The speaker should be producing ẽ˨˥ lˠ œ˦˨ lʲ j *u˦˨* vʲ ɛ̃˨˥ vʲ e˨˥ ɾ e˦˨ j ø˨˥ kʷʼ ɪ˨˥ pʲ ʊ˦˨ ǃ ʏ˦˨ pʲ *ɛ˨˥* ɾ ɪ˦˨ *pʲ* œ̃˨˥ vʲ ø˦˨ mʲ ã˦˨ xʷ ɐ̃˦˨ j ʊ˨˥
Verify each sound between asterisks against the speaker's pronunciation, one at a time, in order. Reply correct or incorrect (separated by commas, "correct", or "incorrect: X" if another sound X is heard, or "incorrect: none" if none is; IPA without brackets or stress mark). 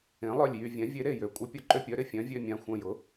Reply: incorrect: y˦˨, incorrect: œ˨˥, incorrect: fʲ